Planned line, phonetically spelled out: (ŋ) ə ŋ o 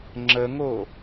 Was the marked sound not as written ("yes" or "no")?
yes